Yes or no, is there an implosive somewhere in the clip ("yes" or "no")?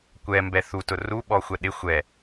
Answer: yes